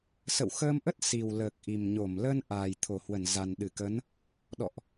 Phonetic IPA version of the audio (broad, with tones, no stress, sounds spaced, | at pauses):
s ə̰˧˨ w x əː˧ m ʔ ə˦˥ t̚ s i˨˩ w l əː˨˩ k̚ ʔ i˨˩ m ɲ o˧˩ m l ə˧ n ʔ aː˨˩ j t̪ʰ o˧˩ h w ə˧˩ n z a˨˩ n ɗ ɨ˧˩ k ə˨˦ n | ɗ ɔ̰˧˨ ʔ